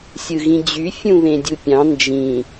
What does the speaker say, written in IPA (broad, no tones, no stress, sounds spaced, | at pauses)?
sʲ ɯ ɣ ĩ d͡ʑ y fʲ ũ β ẽ dʲ u pʲ ɑ̃ n d͡ʒ ĩ